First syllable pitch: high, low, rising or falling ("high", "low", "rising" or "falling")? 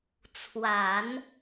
low